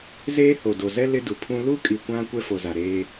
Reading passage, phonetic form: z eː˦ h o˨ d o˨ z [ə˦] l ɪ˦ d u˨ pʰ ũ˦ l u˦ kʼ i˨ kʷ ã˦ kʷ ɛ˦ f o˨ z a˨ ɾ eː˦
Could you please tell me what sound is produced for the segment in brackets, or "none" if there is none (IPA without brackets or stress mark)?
ɛ˦